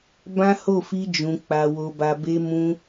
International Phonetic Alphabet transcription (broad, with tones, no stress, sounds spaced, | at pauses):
b ã˦ h o˦˨ f i˧ d͡ʒ ũ˨ k͡p a˨ w o˨ b a˨ b e˧ m ũ˧